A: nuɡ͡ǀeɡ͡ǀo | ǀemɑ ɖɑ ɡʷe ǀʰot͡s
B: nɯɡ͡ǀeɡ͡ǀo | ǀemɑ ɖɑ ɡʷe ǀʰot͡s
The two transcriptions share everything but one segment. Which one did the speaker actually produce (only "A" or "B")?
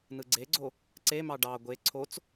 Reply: B